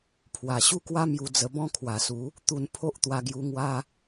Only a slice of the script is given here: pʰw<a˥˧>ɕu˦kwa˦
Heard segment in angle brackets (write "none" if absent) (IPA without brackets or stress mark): a˨˩